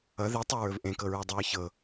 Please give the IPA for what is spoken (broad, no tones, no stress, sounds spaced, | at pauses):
ʌ ð i tˤ ɵ ɹ ɵ v ʔ ẽ k ɤ ɹ ɛ dˤ ɤ ɹ ç ɤ